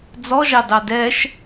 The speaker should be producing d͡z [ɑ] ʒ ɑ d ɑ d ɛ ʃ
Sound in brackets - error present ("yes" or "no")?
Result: yes